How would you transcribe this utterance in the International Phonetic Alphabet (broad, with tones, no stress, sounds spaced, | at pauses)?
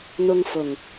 n̪ ʊ˧ ŋ f ʊ˨˩ ŋ